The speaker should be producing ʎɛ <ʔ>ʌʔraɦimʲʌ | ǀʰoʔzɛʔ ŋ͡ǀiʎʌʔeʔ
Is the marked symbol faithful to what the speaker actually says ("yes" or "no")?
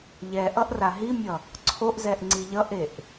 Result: yes